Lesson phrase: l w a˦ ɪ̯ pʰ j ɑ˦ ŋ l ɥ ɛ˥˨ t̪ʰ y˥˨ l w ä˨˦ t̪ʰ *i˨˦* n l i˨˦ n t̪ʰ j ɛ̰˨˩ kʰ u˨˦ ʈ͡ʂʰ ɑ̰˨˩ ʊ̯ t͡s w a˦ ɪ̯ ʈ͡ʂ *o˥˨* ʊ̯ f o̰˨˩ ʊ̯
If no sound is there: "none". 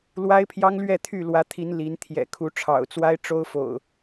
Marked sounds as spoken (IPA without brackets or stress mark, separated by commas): i˨˦, o˦